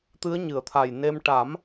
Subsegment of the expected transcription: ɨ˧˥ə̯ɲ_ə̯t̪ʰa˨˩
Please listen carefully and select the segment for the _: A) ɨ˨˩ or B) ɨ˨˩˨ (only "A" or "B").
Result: B